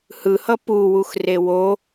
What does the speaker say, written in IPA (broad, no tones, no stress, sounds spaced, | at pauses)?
h ɯ h ʌ p u w u x r e w o